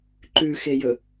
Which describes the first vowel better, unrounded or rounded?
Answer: rounded